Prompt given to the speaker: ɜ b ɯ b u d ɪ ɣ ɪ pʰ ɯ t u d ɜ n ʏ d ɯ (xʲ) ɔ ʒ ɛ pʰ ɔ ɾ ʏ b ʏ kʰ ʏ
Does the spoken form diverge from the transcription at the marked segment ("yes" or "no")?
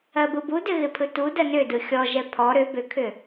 no